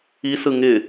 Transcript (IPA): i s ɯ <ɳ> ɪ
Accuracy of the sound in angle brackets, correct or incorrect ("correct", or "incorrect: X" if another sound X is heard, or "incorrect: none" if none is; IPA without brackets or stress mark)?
incorrect: ŋ